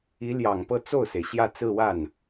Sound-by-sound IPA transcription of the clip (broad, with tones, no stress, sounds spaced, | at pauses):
i˧˥ l j ɑ˨˩ ŋ p ɤ˥˧ t͡s o˥˩ ʊ̯ s e˩ ɪ̯ ɕ j ä˥˧ t͡s ɹ̩˥˧ w a˥˩ n